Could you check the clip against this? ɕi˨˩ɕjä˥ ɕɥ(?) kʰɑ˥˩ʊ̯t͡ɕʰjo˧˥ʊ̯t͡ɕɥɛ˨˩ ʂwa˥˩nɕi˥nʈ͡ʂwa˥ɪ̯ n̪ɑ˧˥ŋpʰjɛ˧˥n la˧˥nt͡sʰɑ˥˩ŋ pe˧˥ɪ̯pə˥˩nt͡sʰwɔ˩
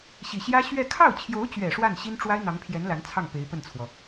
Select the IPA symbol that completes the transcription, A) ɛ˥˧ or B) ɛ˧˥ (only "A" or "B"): A